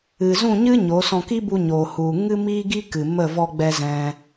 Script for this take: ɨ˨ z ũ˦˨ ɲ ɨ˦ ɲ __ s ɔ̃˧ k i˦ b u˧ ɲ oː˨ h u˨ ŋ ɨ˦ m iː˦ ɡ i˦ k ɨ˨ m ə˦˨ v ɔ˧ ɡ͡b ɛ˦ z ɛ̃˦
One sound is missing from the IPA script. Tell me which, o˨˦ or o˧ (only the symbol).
o˨˦